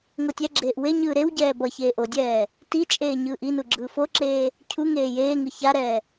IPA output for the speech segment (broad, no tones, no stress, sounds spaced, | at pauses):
ŋ o tʲ ɛ ɡ͡ǁ eː ʔ w e ɲ ɯː ɾ e w ɟ ɛː b ʌ ç eː ʔ o dʲ ɛː | t i t͡ʃʼ eː ɲ ɯː ʔ i n u ɡ͡ǁ ɯː f o ǁ eː | cʰ u ŋ eː j eː ŋ ɯ ç a ɾ ɛː